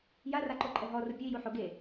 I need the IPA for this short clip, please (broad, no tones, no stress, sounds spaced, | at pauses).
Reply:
j a r a ǃ o ǃʼ ɛ ɦ ɔ r ʊ pʲ ʊ i̯ j u ħ o ɡ e